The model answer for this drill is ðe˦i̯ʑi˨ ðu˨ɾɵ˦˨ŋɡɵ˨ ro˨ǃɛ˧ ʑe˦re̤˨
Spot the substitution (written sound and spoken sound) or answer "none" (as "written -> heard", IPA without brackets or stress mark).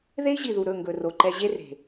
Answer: none